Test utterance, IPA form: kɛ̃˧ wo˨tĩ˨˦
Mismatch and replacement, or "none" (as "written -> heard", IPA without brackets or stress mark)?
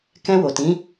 none